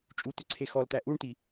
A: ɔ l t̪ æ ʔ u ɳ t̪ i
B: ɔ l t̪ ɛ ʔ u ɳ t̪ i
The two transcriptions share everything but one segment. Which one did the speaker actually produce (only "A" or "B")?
A